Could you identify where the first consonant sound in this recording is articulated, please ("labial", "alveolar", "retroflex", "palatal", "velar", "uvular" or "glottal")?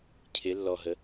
palatal